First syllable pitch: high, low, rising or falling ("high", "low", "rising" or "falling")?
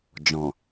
low